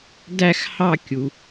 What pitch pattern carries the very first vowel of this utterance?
falling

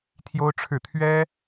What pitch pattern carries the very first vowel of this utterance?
high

